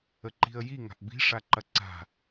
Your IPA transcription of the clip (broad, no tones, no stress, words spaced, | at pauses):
əǃi̤ə̯ji ŋa̤ʔbi̤ ʂaǃɐǀa̤